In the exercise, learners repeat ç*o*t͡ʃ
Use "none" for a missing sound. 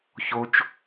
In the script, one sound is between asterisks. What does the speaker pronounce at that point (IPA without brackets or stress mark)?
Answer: o